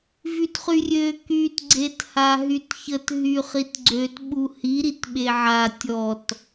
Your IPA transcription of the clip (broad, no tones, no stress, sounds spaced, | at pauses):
v y t χ y rʲ ø k y t ɡ͡ǀ e t h a ɦ y t ç ə t ɦ y χ i t ɡ͡ǀ ø t ɓ u h i ɾ i t ɓ e ʕ a tʲ ɔ t